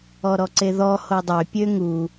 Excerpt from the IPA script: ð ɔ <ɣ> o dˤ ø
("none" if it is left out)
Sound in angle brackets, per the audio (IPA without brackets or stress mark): h